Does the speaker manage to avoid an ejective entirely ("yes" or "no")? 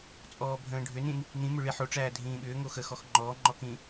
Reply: no